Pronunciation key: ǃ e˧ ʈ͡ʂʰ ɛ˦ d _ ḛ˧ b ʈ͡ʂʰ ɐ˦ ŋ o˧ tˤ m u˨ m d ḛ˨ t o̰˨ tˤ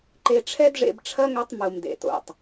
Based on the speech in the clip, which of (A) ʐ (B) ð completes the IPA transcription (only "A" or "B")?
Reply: A